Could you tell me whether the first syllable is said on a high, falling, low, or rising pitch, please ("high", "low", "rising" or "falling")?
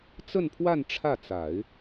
falling